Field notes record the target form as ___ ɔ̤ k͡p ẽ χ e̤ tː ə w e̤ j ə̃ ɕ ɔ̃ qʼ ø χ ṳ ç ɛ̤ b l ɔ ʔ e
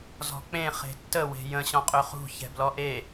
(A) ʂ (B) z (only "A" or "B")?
B